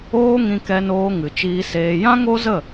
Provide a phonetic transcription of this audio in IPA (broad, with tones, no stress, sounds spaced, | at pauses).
oː˦ ŋ ĩ˧ k ɛ˧ n oː˧ ŋ ɨ˨ t͡ʃ iː˧ s eː˧ j ã˦ ŋ o˦ z ə˦˨